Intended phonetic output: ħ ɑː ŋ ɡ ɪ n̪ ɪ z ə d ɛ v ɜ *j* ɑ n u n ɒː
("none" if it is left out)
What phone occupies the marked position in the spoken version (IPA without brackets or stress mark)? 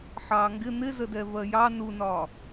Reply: j